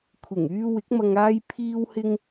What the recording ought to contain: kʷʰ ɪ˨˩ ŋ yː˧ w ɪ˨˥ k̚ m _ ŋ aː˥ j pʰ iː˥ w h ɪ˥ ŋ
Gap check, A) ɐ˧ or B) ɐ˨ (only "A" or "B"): A